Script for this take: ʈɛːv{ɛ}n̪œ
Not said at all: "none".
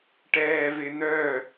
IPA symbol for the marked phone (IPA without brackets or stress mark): ɪ